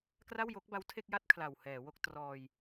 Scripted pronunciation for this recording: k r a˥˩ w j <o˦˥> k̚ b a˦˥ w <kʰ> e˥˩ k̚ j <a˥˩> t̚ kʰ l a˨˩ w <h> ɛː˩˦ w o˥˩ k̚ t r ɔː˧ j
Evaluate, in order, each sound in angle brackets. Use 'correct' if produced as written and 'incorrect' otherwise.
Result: correct, incorrect: tʰ, correct, correct

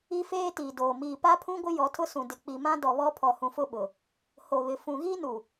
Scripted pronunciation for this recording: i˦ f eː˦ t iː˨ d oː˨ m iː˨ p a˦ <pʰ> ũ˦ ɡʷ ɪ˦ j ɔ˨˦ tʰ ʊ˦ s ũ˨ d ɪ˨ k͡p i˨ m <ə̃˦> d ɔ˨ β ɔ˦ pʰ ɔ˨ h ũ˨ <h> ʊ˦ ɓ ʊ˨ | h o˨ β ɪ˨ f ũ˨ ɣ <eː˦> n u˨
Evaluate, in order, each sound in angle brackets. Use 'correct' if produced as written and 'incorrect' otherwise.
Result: correct, incorrect: ã˦, incorrect: f, incorrect: iː˦

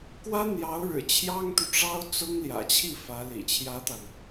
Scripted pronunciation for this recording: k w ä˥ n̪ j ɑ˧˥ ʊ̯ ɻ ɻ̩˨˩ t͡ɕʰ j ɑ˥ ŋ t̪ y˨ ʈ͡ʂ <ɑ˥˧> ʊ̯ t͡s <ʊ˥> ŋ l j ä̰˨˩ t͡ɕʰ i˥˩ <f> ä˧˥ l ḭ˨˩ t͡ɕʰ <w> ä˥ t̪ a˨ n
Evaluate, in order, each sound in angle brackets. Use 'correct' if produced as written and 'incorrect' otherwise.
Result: incorrect: ɑ˥, correct, correct, incorrect: j

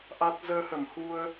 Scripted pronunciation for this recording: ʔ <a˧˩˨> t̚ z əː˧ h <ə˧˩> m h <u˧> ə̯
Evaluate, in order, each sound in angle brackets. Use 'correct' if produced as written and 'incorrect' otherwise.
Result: incorrect: a˦˥, correct, correct

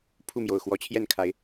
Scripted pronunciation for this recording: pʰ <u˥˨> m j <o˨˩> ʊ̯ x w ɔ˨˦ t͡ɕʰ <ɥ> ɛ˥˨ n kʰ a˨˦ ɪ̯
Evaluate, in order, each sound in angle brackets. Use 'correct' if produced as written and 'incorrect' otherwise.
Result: correct, correct, incorrect: j

